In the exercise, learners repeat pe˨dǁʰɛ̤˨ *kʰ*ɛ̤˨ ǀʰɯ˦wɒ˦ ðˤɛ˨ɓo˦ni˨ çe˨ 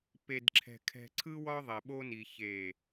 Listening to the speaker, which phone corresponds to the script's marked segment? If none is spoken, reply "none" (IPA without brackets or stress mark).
kʰ